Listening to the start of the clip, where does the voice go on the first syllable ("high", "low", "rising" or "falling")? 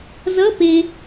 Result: rising